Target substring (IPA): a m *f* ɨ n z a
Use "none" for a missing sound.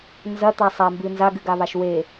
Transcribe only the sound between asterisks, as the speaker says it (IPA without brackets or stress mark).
b